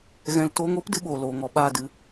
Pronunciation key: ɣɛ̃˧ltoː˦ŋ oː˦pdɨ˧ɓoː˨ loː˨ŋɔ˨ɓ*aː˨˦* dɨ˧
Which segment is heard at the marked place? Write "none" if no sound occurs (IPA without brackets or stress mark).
aː˦˨